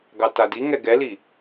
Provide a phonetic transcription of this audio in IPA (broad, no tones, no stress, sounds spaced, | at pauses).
ɡ ɑ t a d i ŋ ɛ ɡ ɛ l i